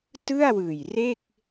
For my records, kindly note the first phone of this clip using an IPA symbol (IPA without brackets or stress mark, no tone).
t